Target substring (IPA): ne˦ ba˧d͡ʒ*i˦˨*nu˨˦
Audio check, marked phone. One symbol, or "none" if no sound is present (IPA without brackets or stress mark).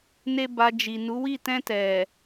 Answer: i˨